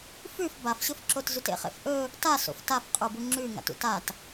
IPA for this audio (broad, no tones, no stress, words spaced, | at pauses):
fʉf bafɕɵfǁot zʉtḛχḛfʔɵ | taso̰f tafqʼubu ŋ͡ǁʉ ŋa̰tṵtat